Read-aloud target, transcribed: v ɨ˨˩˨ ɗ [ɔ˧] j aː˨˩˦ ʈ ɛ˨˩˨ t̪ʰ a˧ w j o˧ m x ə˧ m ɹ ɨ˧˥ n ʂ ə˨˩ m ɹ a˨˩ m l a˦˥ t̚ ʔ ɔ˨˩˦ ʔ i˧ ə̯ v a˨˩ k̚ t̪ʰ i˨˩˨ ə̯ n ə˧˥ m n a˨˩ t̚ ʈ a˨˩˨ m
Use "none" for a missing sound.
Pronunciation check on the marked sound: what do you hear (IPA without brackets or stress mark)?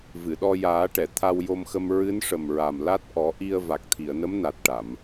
ɔ˧